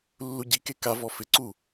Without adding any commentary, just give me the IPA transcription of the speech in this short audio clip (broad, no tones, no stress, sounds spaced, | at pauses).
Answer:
lː u ɟ i k e k a v ɔ f ɪ ǀ u